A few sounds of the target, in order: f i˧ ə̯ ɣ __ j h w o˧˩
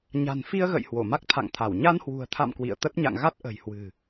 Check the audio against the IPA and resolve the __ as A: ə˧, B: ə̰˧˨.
B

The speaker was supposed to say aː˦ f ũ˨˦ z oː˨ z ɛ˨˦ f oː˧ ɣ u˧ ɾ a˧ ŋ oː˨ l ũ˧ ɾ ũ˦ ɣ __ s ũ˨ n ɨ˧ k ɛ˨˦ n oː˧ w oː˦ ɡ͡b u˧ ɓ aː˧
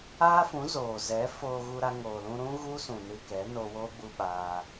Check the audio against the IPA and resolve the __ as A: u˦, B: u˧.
A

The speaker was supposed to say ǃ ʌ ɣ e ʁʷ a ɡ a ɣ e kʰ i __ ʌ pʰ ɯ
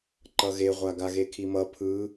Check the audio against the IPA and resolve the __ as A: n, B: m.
B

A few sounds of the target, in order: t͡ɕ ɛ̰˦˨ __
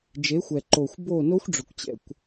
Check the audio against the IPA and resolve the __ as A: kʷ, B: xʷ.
A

